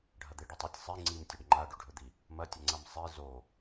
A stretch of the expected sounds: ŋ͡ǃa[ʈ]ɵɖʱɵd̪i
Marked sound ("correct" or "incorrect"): incorrect